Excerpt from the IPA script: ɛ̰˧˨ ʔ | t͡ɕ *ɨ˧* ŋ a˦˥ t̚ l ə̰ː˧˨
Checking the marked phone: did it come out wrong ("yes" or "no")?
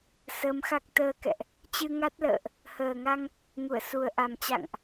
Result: no